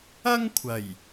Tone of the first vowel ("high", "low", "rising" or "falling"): high